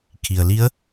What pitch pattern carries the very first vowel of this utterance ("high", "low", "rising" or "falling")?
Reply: low